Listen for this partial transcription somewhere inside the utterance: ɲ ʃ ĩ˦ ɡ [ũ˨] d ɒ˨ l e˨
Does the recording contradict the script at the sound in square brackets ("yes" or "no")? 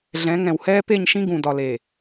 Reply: no